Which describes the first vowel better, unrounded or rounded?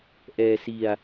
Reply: unrounded